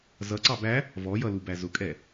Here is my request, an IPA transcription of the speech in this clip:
z ʌ ǀ ɑ b æ | v ɔ j ʌ l u b æ z ʊ kʼ ɛ

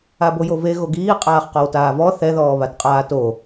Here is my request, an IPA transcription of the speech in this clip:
a b o j o v e ɣ o ɡ iː qʼ aː χ q ɔ w t aː v ɔ θ ɛ ð ɔː β a t qʼ aː t o

